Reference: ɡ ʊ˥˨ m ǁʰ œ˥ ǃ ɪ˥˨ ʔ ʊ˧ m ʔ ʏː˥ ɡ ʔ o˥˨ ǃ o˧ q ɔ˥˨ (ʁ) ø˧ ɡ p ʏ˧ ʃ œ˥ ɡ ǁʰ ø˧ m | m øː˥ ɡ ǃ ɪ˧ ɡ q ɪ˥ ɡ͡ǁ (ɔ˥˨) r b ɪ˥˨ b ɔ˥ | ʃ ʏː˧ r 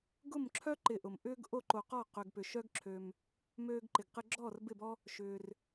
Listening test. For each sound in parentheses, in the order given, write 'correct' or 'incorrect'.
incorrect: q, correct

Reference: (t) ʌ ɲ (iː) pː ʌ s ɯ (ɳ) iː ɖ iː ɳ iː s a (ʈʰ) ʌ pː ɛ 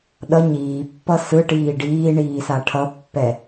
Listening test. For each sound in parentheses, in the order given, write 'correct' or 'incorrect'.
incorrect: ɗ, correct, incorrect: ʈ, correct

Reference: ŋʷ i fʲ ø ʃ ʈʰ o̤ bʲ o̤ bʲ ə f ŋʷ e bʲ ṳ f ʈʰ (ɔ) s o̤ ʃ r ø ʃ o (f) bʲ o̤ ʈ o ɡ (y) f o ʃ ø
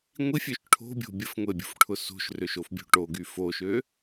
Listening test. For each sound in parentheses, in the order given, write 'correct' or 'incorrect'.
incorrect: ʊ, correct, correct

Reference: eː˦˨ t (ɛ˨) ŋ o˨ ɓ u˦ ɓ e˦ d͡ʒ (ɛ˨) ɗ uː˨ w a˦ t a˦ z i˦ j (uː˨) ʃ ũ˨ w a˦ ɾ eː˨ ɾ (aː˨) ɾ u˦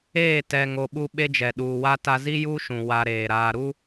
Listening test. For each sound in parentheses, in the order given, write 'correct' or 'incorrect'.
correct, correct, incorrect: uː˦, correct

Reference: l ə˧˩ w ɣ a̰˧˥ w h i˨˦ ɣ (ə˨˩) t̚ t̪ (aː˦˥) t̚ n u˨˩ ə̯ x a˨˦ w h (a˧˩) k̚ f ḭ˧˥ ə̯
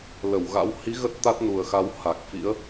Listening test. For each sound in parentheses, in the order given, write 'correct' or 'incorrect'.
incorrect: ə˦˥, incorrect: a˦˥, incorrect: a˨˩

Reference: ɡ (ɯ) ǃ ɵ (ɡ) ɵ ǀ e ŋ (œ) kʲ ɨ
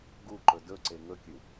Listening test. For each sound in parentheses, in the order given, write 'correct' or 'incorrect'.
incorrect: u, incorrect: d, incorrect: ɵ

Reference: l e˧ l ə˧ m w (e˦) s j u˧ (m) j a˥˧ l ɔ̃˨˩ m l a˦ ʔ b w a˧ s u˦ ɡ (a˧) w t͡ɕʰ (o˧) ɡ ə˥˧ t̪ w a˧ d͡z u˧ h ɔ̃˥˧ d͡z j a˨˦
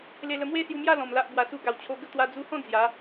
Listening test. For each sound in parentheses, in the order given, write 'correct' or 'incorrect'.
correct, correct, correct, correct

